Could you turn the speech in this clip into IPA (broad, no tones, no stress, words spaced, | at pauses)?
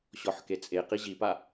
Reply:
ɕɔħket͡sʼe qiʑipa